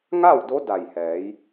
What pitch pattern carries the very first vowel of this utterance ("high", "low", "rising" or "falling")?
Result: falling